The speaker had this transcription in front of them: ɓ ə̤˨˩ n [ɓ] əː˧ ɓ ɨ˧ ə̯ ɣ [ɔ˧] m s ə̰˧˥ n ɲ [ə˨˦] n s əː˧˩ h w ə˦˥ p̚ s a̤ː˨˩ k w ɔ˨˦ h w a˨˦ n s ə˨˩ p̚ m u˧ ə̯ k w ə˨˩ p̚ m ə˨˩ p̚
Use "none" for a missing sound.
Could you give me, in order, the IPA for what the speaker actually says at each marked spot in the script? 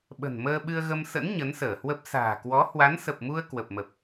m, ə˧, ə˨˦

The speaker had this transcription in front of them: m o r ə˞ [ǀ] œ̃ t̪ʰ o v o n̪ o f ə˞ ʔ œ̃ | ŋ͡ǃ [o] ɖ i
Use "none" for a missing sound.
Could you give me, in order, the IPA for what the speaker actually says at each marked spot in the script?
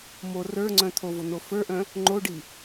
ŋ͡ǀ, o

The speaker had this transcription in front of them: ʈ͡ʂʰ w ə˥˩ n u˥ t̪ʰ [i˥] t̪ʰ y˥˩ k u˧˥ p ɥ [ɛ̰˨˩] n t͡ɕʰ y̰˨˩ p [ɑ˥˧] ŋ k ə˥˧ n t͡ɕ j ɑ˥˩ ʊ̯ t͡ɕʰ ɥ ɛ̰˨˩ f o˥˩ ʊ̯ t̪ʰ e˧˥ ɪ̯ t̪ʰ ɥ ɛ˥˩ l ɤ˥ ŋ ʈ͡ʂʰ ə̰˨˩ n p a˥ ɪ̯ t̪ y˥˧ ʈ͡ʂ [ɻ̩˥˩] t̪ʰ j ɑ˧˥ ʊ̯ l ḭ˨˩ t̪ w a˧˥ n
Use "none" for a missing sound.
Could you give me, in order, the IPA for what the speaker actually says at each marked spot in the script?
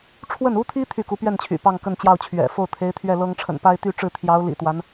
i˥, ɛ˥˩, ɑ˥˧, ɻ̩˥˩

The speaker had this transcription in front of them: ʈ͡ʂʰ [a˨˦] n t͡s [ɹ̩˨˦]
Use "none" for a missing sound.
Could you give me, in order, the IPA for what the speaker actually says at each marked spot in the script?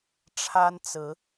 a˦, ɹ̩˨˦

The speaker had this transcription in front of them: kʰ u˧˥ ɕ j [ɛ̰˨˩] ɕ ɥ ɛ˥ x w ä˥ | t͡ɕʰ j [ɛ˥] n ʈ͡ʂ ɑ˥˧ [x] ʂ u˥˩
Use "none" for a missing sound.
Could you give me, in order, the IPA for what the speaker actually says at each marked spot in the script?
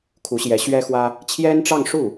ɛ˧˥, ɛ˥, ŋ

